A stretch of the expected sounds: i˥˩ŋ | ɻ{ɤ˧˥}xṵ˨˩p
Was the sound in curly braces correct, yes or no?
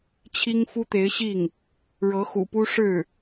yes